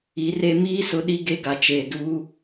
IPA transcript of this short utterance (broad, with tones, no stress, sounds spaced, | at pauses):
i˨˦ r e˦ m iː˦ s ʊ˨˦ ɗ i˦ ɡ e˦ ɡ a˨ t͡ʃ eː˨ d uː˦